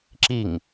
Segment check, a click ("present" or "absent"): present